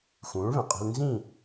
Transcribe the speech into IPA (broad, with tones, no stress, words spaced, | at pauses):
xũː˨˥ɭβɛ̃˩qʼe̤˦l nzĩ˥˨